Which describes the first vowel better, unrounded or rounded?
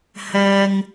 unrounded